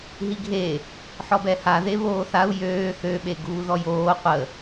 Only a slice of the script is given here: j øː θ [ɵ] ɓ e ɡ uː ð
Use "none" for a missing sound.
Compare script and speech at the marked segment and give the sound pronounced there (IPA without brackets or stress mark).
ø